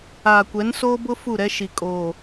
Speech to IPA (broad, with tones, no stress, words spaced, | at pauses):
aː˨kʷɛ˨˦nsoː˦bʊ˦ fu˦˨ɾɛ˦ʃi˨kʼoː˨